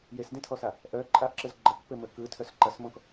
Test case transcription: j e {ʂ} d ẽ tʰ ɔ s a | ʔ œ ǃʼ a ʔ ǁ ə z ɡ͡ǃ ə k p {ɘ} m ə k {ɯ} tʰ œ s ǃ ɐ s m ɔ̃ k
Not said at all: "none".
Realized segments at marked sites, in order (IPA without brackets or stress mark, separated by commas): s, ɘ, ɯ